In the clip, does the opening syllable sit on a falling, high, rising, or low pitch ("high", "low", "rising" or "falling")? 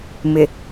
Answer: low